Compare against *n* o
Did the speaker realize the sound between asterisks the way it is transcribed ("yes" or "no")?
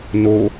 yes